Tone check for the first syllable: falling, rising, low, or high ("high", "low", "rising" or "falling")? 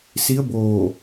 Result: rising